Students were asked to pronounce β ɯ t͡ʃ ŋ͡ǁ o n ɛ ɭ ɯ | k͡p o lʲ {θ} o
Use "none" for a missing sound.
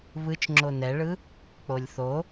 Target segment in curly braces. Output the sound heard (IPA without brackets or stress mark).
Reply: θ